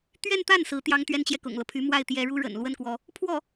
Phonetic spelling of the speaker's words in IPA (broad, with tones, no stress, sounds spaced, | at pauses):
t̪ ɥ ɛ˥˧ n t̪ a˥˩ n s ɹ̩˧˥ t̪ j ɑ˥ ŋ t̪ ɥ ɛ˥ n t͡ɕ j ɛ˨ k ʊ̰˨˩ ŋ l ɤ˦ pʰ y˧˥ m w a˥˩ ɪ̯ t̪ j ɛ˧˥ ɻ u˥ ɻ ə̰˨˩ n l w ə˥ n k w ɔ˧˥ | pʰ w ɔ˥˩